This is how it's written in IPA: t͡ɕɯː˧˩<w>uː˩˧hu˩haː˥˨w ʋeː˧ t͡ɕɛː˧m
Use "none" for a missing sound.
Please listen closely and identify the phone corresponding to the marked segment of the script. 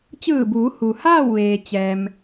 b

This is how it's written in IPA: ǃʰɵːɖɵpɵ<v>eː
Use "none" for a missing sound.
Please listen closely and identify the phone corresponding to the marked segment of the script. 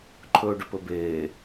b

